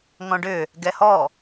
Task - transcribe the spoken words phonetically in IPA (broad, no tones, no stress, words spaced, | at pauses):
ŋɔ̃ɖʏ | ɡɛhɔ